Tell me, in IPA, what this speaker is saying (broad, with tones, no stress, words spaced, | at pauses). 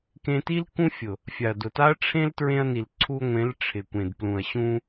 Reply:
kẽ˧ti˦l kũ˦fʲʊ˨ | fʲa˨ɐ̯dʊ˨ ta˦ɐ̯ʈ͡ʂʰẽ˦l tɹẽ˧ɐ̯ni˨l ǀʰu˧ŋʷẽ˨˦l ʈ͡ʂʰɪ˨kʷẽ˨dplũ˨ɐ̯ ɕũ˧